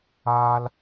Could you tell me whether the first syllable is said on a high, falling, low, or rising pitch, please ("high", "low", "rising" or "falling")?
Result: high